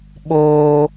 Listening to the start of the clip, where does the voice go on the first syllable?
high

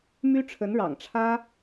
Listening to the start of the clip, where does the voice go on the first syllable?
high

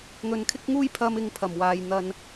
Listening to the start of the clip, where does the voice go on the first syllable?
low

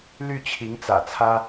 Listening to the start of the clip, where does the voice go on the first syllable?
falling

